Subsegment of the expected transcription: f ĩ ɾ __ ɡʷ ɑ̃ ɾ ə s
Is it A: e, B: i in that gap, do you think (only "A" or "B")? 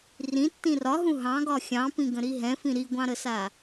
B